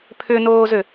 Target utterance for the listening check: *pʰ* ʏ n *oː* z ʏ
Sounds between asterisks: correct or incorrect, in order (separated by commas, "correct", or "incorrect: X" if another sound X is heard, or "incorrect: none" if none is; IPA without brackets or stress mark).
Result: correct, correct